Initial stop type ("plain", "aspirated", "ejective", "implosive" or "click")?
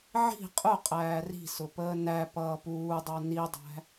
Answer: ejective